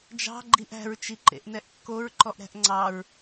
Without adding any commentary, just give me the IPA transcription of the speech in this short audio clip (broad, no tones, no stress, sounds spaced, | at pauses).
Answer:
d͡ʒ ɑ̤ ɡ͡ǃ i ʔ æ̤ ɹ t͡ʃ i ǃ ḛ ʔ n ɛ ʔ kː o ɹ ǃ ɔ ʔ ɾ æ̤ ʔ ŋ͡ǀ ɑ ɹ